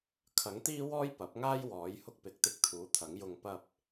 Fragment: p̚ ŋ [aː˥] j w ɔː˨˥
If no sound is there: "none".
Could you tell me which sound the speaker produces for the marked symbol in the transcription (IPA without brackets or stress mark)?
aː˥